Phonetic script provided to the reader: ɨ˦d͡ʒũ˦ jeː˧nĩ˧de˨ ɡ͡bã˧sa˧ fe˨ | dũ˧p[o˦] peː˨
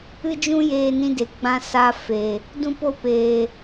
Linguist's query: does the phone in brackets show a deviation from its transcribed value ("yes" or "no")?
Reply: yes